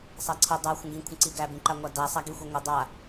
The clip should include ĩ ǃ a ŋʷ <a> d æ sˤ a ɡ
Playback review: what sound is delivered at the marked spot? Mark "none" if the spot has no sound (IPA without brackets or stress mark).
a